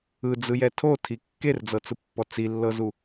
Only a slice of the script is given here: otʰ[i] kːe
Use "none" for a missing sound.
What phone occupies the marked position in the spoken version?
i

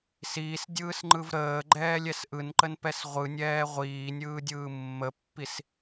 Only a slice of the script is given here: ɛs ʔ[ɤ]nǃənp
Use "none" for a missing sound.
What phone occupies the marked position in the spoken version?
ɯ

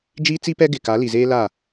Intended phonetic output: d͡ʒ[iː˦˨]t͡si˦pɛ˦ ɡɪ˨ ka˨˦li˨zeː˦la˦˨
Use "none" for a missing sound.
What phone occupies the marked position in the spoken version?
iː˦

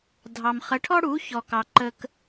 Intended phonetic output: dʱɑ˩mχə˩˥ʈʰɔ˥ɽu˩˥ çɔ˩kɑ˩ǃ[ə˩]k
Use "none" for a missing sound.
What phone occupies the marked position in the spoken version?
ə˧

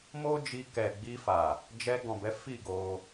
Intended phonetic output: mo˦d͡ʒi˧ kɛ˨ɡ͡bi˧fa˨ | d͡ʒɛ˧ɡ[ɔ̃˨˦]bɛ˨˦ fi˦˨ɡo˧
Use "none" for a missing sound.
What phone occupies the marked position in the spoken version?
ɔ̃˨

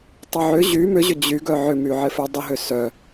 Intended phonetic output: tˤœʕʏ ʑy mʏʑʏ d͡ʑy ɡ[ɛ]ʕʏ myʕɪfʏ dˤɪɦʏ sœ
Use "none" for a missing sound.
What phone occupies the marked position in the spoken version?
œ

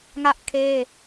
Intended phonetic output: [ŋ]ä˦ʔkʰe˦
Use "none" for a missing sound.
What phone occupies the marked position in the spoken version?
ŋ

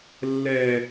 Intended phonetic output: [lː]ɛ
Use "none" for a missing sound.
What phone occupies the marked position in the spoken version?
lː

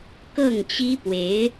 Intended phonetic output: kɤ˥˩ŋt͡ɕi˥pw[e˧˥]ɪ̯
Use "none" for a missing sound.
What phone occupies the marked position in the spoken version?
e˧˥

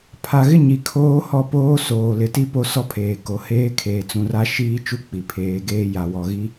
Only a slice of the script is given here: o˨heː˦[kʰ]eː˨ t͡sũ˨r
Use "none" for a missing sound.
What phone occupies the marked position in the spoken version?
kʰ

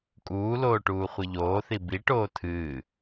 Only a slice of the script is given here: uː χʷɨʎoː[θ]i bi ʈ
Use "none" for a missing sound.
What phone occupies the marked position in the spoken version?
θ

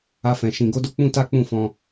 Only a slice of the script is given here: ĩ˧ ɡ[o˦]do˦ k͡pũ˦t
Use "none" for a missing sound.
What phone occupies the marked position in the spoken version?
o˦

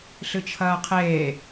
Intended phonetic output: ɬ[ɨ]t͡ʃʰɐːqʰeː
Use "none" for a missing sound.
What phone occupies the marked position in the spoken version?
ɨ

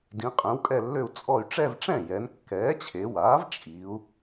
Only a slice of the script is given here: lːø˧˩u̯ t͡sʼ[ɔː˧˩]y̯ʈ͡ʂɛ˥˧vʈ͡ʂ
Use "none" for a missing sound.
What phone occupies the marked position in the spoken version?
ɔ˧˩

